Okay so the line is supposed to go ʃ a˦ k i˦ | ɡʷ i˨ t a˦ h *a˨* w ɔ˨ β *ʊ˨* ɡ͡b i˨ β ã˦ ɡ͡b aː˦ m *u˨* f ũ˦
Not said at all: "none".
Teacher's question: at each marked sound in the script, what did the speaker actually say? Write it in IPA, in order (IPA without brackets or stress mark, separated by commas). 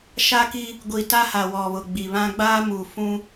a˨, ʊ˨, u˨